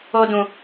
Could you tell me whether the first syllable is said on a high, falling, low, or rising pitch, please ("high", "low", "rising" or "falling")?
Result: high